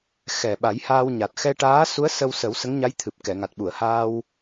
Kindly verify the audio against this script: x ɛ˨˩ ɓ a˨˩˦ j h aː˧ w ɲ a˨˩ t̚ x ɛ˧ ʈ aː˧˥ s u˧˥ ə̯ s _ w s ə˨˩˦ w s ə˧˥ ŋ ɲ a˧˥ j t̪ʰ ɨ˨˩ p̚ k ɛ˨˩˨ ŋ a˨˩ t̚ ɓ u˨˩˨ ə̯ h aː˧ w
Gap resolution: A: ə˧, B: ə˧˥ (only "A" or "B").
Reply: A